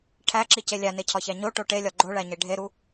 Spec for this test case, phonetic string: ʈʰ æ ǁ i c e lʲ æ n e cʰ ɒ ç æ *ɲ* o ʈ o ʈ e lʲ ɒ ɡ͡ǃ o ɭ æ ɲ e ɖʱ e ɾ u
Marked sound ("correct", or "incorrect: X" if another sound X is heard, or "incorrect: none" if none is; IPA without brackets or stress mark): correct